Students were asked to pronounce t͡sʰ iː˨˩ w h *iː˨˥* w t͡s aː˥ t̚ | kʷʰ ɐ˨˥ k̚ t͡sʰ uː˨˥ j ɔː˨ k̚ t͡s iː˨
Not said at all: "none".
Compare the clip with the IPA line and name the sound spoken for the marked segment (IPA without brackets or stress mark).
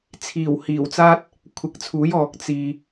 iː˨˩